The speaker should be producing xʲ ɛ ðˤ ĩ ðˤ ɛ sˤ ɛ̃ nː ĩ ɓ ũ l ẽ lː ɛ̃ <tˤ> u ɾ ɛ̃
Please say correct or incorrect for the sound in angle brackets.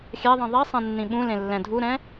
incorrect: dʱ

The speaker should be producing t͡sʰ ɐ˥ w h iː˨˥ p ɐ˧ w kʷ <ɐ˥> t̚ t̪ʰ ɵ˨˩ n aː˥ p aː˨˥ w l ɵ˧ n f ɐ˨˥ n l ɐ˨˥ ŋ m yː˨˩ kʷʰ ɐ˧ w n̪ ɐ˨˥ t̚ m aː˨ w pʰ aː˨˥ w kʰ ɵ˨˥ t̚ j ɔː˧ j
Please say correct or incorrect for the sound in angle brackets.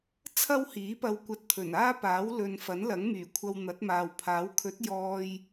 incorrect: ɐ˧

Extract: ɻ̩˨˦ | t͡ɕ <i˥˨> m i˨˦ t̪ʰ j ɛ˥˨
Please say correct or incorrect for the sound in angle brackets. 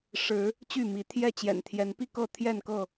incorrect: y˥˨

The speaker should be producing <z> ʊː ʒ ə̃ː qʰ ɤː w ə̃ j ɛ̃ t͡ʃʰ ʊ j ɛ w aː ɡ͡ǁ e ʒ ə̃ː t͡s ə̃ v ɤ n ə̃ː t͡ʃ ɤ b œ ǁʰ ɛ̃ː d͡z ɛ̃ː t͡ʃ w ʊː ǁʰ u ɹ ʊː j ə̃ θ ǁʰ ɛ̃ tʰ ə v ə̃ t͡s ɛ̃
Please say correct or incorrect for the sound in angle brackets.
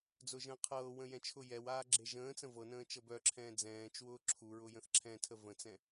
incorrect: d͡z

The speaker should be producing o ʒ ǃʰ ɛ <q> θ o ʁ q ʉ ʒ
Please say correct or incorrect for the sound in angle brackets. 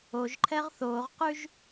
incorrect: ʁ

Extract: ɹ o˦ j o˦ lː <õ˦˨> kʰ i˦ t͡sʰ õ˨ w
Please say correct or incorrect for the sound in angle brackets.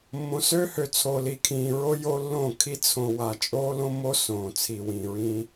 correct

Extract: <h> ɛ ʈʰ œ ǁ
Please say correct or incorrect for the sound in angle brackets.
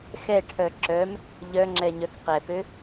incorrect: x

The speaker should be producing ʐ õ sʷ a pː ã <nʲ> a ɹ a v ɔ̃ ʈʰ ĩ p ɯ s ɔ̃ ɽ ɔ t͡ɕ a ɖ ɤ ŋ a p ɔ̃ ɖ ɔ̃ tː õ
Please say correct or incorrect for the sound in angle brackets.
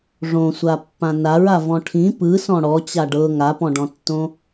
incorrect: n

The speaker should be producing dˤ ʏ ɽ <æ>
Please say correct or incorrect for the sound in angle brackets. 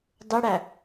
correct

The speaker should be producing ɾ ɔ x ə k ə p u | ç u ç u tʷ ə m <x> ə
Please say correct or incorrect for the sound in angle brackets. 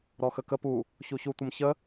incorrect: ç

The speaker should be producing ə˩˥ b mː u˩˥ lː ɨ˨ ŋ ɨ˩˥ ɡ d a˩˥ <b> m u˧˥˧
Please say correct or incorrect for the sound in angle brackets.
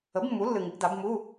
correct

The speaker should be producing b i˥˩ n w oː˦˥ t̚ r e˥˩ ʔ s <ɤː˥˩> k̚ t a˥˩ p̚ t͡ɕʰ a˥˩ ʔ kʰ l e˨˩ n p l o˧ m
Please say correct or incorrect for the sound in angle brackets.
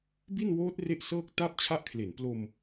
correct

